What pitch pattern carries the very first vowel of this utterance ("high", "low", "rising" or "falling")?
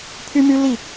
high